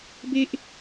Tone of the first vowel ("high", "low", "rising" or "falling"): high